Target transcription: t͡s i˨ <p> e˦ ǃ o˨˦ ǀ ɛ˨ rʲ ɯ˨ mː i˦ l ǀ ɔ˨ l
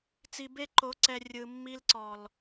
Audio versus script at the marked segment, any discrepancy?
yes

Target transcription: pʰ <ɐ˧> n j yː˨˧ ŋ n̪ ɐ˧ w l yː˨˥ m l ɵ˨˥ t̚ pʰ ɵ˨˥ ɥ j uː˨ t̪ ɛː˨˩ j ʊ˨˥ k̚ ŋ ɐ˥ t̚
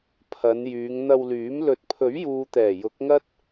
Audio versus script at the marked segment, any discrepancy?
yes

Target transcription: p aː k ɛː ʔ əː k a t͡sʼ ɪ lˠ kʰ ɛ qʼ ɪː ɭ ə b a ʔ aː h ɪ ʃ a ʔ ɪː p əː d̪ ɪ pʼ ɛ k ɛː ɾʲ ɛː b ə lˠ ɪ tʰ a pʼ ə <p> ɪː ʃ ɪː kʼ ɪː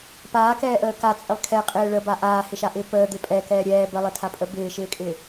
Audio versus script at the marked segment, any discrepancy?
yes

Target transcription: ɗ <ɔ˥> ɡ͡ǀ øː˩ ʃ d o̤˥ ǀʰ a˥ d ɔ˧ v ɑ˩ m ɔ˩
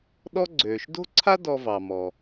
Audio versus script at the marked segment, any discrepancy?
no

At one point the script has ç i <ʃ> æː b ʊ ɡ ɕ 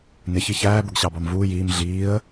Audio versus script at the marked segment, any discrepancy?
yes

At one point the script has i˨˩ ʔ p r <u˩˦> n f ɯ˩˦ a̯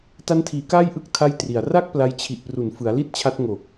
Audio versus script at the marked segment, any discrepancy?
no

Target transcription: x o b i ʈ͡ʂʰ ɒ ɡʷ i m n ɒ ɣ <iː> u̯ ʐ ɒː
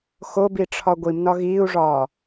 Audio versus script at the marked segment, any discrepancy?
no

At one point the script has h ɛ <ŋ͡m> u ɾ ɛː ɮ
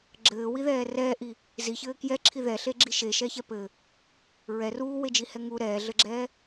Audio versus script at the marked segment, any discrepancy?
yes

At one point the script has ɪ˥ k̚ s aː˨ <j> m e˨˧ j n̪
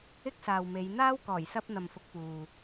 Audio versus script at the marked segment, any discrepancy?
yes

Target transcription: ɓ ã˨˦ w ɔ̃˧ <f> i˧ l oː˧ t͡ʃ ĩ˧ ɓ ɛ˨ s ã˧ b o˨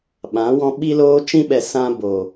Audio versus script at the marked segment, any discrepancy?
yes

